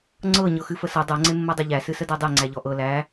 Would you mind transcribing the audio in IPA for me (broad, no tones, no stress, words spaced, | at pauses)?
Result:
ŋ͡ǀɤ ɲɤxɨfəsɤ dˤɤ ŋ͡ǀemːɤdˤɤʎæ sɨsədædˤe ŋ͡ǀæʎɔʔɤ læ